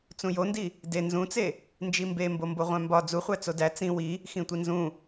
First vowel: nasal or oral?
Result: nasal